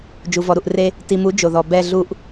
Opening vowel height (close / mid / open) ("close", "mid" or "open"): close